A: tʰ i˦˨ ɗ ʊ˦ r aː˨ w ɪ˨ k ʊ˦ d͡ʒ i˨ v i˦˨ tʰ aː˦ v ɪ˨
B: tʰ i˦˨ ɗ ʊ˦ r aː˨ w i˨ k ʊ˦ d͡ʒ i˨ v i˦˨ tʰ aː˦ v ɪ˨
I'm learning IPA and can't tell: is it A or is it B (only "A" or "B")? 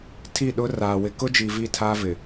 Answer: A